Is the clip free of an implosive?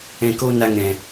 yes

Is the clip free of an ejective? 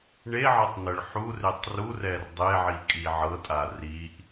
no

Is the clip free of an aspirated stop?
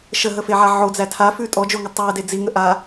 no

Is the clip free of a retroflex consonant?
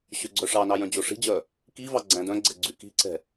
no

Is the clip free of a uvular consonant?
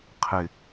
no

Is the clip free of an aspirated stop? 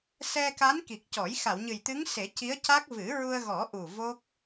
yes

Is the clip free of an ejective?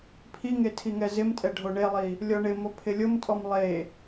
no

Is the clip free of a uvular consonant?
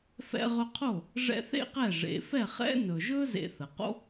no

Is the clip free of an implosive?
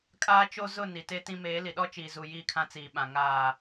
no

